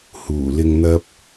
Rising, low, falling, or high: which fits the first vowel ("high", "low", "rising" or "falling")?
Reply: low